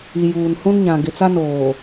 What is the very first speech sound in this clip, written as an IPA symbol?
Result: i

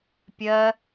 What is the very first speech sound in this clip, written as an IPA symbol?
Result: pʲ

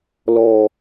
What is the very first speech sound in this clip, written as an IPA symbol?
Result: l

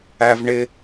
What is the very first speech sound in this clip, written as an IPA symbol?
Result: æ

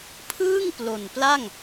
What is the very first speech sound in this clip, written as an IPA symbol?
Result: pʰ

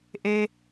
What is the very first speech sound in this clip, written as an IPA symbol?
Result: ʔ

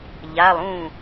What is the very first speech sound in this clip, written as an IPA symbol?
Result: ʎ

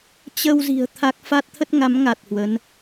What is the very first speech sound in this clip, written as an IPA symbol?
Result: t͡ɕ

